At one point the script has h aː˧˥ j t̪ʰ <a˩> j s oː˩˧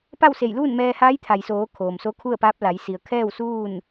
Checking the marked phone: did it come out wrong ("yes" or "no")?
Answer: no